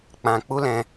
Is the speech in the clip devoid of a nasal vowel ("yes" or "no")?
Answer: no